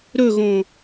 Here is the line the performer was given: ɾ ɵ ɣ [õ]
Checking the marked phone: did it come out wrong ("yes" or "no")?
no